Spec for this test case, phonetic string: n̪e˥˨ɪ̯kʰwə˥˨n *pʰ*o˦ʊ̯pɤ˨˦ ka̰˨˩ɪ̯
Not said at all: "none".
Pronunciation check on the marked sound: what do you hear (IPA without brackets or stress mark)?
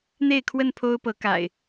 pʰ